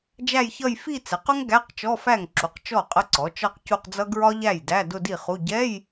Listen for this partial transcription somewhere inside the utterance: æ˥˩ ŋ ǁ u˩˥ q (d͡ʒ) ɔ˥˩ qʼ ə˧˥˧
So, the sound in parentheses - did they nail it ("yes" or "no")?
no